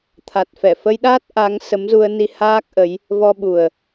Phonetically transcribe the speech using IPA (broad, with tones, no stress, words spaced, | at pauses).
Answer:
t̪ʰa˨˩t̚fɛ˧˩ fə˧jɗaː˦˥t̚ ʔa˨˦ŋsə˨˦mzu˧ə̯ni˧ haː˦˥k̚ʔə˨˦j | vɔ˧ɓu˨˩ə̯